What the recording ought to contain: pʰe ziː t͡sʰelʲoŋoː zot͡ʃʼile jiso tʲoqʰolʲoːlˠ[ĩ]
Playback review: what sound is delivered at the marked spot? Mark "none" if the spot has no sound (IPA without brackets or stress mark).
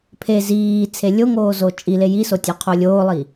i